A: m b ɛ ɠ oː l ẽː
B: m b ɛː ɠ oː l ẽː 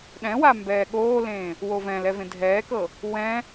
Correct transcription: B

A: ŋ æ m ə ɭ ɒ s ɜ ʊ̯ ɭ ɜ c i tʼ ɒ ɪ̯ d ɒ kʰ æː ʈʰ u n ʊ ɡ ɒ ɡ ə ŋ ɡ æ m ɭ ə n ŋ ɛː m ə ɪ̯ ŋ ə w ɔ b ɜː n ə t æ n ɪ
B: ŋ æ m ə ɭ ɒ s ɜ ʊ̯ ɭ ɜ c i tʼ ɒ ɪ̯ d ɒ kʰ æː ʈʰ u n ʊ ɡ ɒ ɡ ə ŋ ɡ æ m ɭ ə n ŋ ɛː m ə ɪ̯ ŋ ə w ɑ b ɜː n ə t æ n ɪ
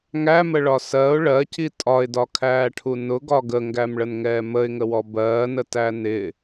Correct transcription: A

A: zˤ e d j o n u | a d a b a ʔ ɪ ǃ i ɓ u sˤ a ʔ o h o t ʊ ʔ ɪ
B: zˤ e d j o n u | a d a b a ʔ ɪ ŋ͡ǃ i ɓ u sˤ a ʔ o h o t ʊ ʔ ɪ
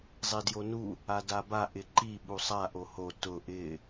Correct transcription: A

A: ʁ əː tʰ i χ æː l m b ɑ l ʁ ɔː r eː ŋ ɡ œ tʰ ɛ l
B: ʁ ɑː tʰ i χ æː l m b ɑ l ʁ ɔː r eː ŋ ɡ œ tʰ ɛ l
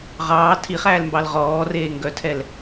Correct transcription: B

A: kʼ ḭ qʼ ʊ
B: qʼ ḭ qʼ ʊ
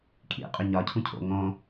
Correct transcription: A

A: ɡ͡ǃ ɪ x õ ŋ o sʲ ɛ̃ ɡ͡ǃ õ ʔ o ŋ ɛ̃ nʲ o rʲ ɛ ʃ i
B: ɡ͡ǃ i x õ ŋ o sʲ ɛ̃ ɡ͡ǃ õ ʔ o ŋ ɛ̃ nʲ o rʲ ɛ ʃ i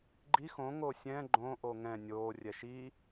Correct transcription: B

